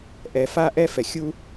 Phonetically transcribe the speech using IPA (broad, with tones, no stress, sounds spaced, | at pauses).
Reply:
ʔ ɛ˩ f a˥ ʔ ɛ˥ f ɛ˩ xʲ u˥